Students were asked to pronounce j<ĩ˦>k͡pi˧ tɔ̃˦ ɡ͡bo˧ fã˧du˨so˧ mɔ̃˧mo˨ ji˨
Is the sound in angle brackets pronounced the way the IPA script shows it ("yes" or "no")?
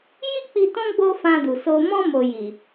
no